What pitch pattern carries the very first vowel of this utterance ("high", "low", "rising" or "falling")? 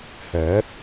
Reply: rising